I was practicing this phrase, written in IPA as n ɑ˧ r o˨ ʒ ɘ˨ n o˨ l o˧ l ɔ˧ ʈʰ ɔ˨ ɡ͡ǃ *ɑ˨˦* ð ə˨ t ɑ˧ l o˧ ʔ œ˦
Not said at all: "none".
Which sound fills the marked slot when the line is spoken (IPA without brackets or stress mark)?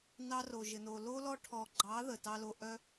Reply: ɑ˨˦